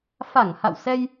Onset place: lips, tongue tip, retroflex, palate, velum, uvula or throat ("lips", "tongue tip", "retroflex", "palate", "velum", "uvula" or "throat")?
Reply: lips